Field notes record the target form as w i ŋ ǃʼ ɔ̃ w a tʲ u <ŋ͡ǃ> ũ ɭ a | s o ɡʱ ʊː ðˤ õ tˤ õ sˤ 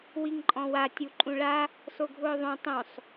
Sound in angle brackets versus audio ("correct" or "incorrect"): incorrect